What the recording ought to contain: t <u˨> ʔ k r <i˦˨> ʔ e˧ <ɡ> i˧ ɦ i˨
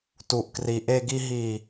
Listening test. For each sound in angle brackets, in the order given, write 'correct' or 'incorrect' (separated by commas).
correct, incorrect, correct